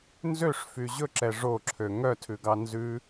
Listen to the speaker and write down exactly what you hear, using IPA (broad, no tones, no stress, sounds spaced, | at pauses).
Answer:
n z ø ʂ f y ʑ ɵ ǁ ɛ ʐ o ǁʰ ø ŋ œ tʰ ʉ ɡ ɑ n z ʉ